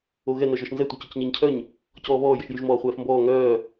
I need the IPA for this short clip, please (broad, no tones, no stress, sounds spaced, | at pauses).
o ɣ ɛ n œ ʒ ɔ ʃ n z ɛ tʷ œ c œ c ɲ əː ɲ cʰ œ ɲ | c ɔː β ɔː j ə ʃ j y ʒ m ɔː χʷ ɛː f m b ɔː ŋ œː